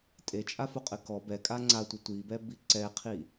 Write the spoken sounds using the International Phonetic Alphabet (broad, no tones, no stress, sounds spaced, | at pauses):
tʼ e t͡ʃʼ a f o qʼ ɘ k ɔ b ɛ kʼ a ŋ͡ǀ a tʷ ɐ tʷ i b ɛ b i ǀ ɛ qʰ i